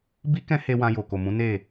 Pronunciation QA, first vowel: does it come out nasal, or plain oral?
oral